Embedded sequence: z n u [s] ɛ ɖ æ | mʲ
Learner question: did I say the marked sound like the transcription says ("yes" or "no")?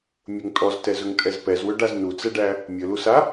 no